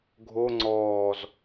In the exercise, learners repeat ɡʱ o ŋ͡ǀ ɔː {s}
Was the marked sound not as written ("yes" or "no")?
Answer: yes